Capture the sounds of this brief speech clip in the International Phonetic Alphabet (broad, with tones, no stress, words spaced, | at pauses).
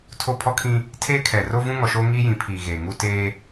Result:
tʰo˦pʰɔ˦kʰĩ˦ | tʰeː˦kʰɛ˨ ro˦vũ˦ ŋɔ˨ʃoː˦ ŋiː˦jĩ˨˦pʰiː˨ ɣeː˨ŋu˦ teː˦